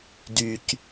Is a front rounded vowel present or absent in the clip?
present